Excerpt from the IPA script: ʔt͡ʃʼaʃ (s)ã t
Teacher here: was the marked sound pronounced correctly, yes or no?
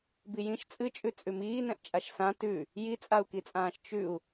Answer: yes